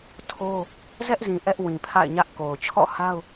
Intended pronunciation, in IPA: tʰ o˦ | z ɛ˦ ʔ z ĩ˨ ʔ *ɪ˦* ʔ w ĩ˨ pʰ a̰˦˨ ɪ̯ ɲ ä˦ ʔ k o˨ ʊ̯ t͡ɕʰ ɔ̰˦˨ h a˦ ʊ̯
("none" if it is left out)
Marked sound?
ɛ˦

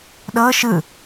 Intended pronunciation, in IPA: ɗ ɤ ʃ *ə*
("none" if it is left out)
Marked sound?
ɯ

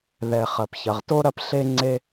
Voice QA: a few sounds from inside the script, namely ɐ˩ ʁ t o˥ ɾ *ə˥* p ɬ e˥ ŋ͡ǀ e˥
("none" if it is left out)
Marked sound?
ɐ˥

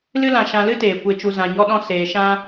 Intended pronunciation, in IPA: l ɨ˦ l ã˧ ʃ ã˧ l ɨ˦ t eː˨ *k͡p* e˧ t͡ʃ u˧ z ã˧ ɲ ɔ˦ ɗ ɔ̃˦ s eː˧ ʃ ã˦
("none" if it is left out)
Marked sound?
kʷ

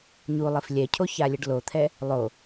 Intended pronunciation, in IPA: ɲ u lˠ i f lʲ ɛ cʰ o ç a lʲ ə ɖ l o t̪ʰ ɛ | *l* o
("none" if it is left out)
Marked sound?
lˠ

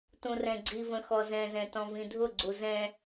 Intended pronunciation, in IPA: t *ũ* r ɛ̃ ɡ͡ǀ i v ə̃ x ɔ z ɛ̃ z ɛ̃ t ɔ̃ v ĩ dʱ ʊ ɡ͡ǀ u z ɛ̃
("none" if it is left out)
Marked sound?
ũ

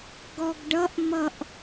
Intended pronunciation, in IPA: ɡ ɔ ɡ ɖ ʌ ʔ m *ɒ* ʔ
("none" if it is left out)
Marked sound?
ʌ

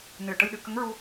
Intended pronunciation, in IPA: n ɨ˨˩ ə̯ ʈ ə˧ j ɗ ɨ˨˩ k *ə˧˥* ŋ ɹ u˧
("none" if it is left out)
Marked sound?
ə˧˥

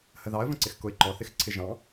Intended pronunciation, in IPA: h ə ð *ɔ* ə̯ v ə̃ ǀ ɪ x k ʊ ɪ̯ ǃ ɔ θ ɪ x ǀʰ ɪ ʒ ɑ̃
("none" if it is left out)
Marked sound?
ɑ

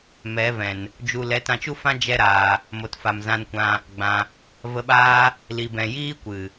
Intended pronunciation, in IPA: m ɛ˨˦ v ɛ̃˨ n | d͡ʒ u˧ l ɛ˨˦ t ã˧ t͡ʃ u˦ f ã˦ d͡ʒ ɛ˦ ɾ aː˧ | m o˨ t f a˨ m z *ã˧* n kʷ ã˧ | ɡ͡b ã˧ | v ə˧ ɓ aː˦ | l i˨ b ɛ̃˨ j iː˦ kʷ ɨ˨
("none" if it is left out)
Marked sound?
ã˧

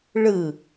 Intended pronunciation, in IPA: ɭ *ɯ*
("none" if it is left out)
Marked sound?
ɯ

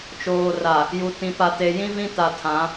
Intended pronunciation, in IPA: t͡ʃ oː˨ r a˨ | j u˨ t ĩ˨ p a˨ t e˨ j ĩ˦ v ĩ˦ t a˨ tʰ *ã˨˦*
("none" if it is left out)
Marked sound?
ã˨˦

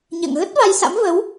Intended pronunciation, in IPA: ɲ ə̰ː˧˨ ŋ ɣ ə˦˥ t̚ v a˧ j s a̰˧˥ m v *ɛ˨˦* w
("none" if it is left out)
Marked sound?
ə˨˦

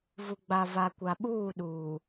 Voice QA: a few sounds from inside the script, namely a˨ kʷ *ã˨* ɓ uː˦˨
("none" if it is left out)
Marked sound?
a˨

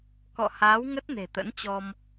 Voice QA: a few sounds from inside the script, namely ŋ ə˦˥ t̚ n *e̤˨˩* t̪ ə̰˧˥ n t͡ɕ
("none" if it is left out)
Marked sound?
e̤˨˩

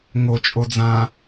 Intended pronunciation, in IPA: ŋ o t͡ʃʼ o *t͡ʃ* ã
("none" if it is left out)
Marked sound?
d͡z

